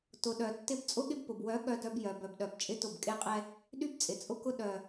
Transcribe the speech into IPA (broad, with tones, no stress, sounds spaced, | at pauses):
t ʊ˨ ɗ œ˨ tː ɪ˦ b t͡sʼ ʊ˦ ɠ ɪ˦ b p ʊ˨ b w œ˨˦ ɠ œ˦ d œ˦ b j œ˨ b œ˨ b ɗ œ˨ b t͡ʃʼ ɪ˦ t ʊ˦˨ b kʼ e˦ qʼ ɛ˦ | ɗ y˦ b t͡sʼ ɪ˨ t͡sʼ ʊ˦ k ʊ˦ ɗ œ˨